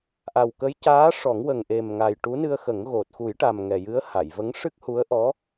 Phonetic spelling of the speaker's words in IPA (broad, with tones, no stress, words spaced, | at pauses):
ʔa˨˩wkə˧˥jcaː˧˥ʂɔ˨˩˦ŋ wə˨˩ŋʔe˨˩mŋa˨˩j ʈu˧˥nɨ˧ə̯xə˨˩˦ŋ ɣo˨˩t̚ xu˨˩˦jʈa˨˩m ŋɛ˨˩jɨ˧˥ə̯ ha˨˩˨jvə˧˥ŋ ʂɨ˦˥k̚hu˧˥ə̯ ʔɔ˧˥